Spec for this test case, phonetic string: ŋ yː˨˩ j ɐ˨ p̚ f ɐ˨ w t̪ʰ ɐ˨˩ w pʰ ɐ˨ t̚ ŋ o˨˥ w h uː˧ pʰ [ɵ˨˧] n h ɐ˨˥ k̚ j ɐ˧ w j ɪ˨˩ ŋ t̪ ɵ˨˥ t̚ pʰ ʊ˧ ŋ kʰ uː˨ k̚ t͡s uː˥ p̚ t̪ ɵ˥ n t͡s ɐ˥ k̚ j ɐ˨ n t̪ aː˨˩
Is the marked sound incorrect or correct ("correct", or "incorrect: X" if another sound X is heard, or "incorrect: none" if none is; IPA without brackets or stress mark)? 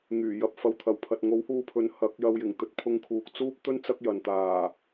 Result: correct